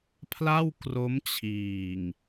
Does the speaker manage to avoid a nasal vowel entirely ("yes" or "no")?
yes